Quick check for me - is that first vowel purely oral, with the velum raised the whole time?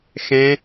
no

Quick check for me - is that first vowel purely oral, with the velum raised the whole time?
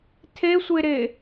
yes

